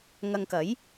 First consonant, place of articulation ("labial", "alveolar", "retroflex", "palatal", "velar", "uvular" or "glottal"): velar